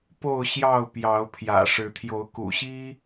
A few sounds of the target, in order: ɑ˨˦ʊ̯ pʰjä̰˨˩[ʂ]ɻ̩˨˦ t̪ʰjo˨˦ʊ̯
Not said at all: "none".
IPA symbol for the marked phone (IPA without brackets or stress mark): ʂ